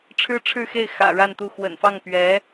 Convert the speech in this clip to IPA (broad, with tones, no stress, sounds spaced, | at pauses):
ʈ͡ʂʰ ɻ̩˥ ʈ͡ʂʰ ɻ̩˥˧ x e˥˩ ɪ̯ x ä̰˨˩ ɻ a˥˧ n t̪ u˥˩ x w ə̰˨˩ n f ɑ˥˩ ŋ p ɥ ɛ˧˥